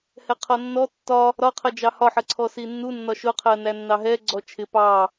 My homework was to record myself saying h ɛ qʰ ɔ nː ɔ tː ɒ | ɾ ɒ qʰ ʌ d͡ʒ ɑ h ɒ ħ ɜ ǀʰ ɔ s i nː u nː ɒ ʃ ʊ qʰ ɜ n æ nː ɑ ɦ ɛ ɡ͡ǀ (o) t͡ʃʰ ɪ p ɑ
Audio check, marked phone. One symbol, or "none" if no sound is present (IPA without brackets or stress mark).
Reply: ɔ